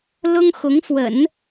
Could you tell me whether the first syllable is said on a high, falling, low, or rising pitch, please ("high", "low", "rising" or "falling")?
high